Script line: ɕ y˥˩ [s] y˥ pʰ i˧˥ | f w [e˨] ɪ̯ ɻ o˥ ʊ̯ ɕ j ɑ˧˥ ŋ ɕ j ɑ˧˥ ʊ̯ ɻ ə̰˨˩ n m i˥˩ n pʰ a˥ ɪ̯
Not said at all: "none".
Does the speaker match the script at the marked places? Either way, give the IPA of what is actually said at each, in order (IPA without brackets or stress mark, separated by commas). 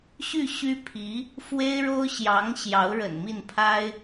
ɕ, e˥